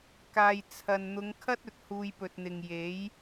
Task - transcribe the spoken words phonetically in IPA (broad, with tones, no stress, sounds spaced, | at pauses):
k aː˨ j t͡sʰ ɐ˨ n n̪ ʊ˨˧ ŋ kʰ ɐ˥ t̚ ɵ˨ t̚ h uː˧ j p ɵ˨ t̚ n̪ ɪ˨ ŋ j e˨˥ j